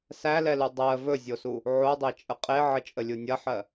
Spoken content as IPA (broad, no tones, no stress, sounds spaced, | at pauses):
s æ l ɛ l u dˤ ɜ v ɵ zʲ o s u | ʕ o dˤ e t͡ʃʼ ə qʼ e ʕ ə t͡ʃʼ ə lʲ u nʲ ɐ ħ ɜ